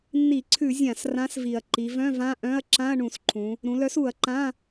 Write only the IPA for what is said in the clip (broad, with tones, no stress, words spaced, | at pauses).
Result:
nːi˧˩˧ǀʰʉ˧˩˧ zʲã˧˩˧s rã˨˥s vi˨˩ɐ̯ ǃi˩˧vœ̃˧˥˧vã˧˥˧ʔœ̃˧˥˧ɐ̯ ǁã˧˥˧ɐ̯ɳũ˧˩˧sǃʰũ˩˧ | ɾũ˩˧lœ˨˥su˧˩˧ɐ̯ǃã˧˥˧